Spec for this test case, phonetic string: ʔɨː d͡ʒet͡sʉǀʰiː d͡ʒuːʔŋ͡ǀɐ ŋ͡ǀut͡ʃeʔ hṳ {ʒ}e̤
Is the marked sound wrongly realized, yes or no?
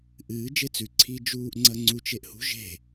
no